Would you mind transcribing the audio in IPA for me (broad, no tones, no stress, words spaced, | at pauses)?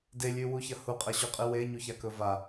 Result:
delʲʉwuçɐ huqʼɐɕuqʼɨ weɲuçakɵ va